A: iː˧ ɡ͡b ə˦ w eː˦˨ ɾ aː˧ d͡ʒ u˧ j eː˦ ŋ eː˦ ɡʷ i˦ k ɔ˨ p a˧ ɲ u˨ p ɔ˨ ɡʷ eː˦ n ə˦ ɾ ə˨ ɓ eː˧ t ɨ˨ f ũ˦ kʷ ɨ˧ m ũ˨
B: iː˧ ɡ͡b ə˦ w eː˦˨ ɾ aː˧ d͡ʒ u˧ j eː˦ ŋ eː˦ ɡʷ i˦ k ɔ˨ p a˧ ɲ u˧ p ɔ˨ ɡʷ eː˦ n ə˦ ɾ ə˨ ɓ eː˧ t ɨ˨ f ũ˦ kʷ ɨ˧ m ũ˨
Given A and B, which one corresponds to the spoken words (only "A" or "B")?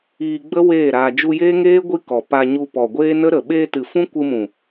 B